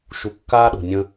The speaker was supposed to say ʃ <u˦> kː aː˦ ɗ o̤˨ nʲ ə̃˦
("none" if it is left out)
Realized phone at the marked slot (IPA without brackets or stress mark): u˦